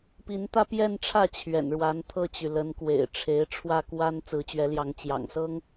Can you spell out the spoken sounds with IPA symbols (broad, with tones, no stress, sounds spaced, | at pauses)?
p i˧˥ n t̪ ä˥ p j ɛ˥˧ n ʈ͡ʂʰ ä˥˩ t͡ɕʰ ɥ ɛ̰˨˩ n ɻ w a˧˥ n t̪ʰ ɤ˥˩ t͡ɕ y˩ l ə˧˥ n k w ḛ˨˩ ɪ̯ ʈ͡ʂʰ e˧˥ ɪ̯ ʈ͡ʂʰ w ä˥˩ k w a˥ n t͡s ɹ̩˧˥ t͡ɕ ɥ ɛ˧˥ l j ɑ˧˥ ŋ t͡ɕ j ɑ̰˨˩ ŋ s ɤ˥ ŋ